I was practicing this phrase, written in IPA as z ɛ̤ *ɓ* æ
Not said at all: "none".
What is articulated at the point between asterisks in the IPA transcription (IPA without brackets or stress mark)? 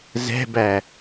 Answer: b